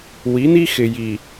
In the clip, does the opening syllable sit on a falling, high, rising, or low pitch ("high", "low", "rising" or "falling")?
rising